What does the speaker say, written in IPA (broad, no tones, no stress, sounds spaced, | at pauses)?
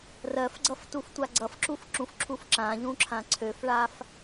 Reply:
r ɜ f ɡ͡ǀ ʌ f t u f tʷ a ɡ͡ǀ ʌ f ǁ u f ǁ ũ f ǁʰ u f ǁ ã ʎ ũ ǁʰ ã ǀʰ ø f ɭ a f